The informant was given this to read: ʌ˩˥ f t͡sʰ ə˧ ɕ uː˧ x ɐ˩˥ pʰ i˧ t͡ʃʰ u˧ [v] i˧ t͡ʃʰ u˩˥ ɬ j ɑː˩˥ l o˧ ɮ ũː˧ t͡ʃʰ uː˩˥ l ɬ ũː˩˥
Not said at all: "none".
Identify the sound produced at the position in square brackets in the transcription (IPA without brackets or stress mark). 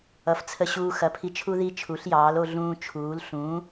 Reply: ð